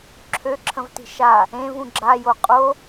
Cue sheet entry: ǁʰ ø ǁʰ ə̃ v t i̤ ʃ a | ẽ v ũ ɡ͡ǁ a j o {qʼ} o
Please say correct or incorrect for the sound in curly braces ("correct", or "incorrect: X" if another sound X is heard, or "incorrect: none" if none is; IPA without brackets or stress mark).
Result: correct